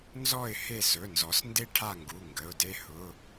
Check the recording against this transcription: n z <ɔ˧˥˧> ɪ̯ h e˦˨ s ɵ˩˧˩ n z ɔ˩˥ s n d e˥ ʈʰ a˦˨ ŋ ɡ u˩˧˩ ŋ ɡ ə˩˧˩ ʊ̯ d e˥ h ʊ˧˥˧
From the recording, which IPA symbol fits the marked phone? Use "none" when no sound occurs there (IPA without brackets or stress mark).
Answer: ɔ˦˨